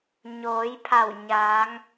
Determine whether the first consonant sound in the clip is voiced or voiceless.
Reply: voiced